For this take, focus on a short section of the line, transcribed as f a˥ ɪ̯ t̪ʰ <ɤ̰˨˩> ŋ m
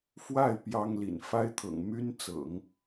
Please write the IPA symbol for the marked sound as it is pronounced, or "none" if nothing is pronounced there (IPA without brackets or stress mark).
ɤ̰˨˩